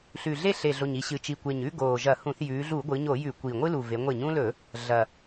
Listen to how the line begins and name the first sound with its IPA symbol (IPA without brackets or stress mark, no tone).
ɬ